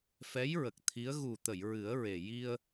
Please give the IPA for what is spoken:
f ɛ˧˥ j ɹ ə˨˩ k̚ t̪ʰ i˧˥ ə̯ ɣ u˨˩ t̪ ə˨˩˨ j ɹ ɨ˨˩˦ ə̯ ɹ e˨˩ j i˧ ə̯

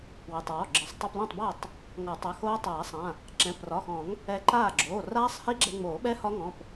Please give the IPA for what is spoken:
w ɪ˩˧˩ tˤ w ɔ˩˧˩ ɡ͡ǁ ɪ˨˩˦ sˤ tˤ o˧ p l ɛ̃˥˩ tˤ b a˥˩ tˤ | ŋ ɔ˨˩˦ tˤ a˩˧˩ x oː˦˥ tˤ aː˨˩˦ sˤ ã˩˧˩ | ǁ ɛ̃˩˧˩ p r ɒ˩˧˩ x ɔ̃˨˩˦ ŋ | ɛ˧ ǃ aː˥˩ ɡ͡ǁ oː˩˧˩ r aː˦˥ sˤ h i˦˥ ɡ͡ǁ ɛ˧ ŋ͡m oː˨˩˦ ɓ ɛ˦˥ h ɒ˦˥ ŋ ɔ̃˩˧˩ p

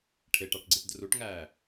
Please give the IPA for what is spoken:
ʈʰ e ʈ ɑ ʈ ɡ͡ǀ i ʈ d r u ʈ ŋ æː

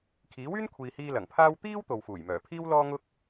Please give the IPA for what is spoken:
kʰ iː˨˥ w yː˥ n kʷʰ iː˨ h iː˧ l ɐ˨˩ ŋ pʰ aː˥ w t̪ iː˥ w t̪ o˨ w f uː˨˩ j m œː˨˩ pʰ iː˥ w l ɔː˥ ŋ ʊ˥ k̚

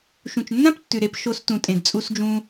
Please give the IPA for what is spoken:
ʃ ũ˨ t͡ʃ nː ã˦ p tː ʉ˨ ɾ e˧ p ʃ o˧ s t ũ˨ tʼ ẽ˨ d t͡sʼ u˦ s d͡ʒ ũ˦

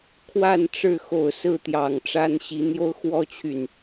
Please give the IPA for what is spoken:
kʰ w a˥˨ n ʈ͡ʂ ɻ̩˥˨ x o˨˩ ʊ̯ s ɹ̩˥˨ t̪ j ɑ˨˩ ŋ ʈ͡ʂ a˦ n ɕ i˨˦ n̪ j o˦ ʊ̯ x w ɔ˦ t͡ɕʰ y˨˩ n

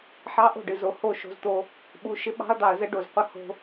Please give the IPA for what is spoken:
ħ ɑ˦ ʔ o̤˦˨ ɖ ɨ˨ z o˨ h o˦˨ ʃ o̤˦ z t̪ o˦ | ɓ u˨ ʃ ɪ˦ ɓ ɑ̤˦ ɐ̯ d̪ ɑ˨ ɐ̯ z ə˦ ɖ o˨ z qʷ ə˦ h o̤˦

